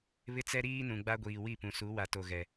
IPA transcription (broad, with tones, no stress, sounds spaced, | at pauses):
β ɪ˦ t͡s ɛ˦ ɾ iː˦ n ũ˨ ɡ͡b a˦ ɡʷ iː˨ w i˦˨ p ũ˨ s u˨˦ w a˨ t o˨ ɣ ɛ˨